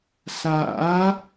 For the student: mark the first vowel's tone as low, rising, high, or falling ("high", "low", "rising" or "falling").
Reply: rising